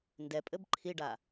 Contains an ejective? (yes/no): yes